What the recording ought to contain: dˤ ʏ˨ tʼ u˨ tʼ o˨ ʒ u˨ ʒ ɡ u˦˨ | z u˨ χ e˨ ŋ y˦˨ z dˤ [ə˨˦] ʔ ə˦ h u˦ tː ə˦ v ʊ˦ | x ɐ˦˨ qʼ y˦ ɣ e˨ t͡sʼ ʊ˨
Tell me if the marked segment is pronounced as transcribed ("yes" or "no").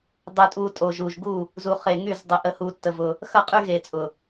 yes